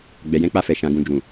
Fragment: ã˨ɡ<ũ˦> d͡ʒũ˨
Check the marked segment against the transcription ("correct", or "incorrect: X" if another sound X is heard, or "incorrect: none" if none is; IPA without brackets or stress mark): incorrect: ũ˨